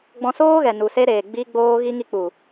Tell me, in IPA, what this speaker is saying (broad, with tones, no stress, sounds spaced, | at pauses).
ɡ͡b ɔ̃˧ s oː˦ ɣ ɛ˨ n u˨ s e˧ ɾ eː˨ ɡ͡b i˧ ɡ͡b oː˧ ɣ i˧ ŋ i˧ k͡p u˨